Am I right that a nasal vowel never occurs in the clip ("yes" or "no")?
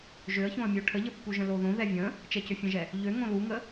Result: no